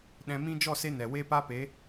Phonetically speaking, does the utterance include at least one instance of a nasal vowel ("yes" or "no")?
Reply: yes